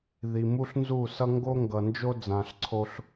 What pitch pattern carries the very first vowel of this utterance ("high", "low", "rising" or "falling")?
low